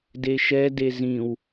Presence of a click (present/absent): absent